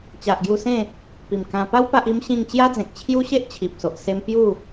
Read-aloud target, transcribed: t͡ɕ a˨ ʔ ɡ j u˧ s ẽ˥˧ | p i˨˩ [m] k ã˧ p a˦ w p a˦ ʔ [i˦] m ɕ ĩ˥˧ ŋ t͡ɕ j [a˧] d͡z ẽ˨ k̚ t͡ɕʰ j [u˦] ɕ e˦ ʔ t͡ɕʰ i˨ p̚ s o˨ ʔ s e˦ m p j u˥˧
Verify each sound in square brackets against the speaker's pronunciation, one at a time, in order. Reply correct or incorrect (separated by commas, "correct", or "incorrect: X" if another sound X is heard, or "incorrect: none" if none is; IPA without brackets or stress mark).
correct, correct, incorrect: a˦, correct